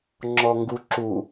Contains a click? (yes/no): yes